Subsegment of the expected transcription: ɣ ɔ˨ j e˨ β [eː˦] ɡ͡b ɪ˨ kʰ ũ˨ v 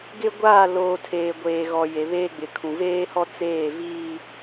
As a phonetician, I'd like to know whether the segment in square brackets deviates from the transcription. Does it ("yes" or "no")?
no